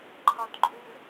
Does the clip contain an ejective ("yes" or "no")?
yes